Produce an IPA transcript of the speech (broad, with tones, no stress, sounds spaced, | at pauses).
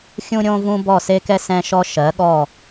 xʲ ũ˧ ɾʲ õ˧ v ũ˧ b ɔ˧˩ s e˧ k ɛ˧ s ɛ̃˧ ʃ ɔ˧ ʃ ɜ˩˧ ɠ ɔ˧˩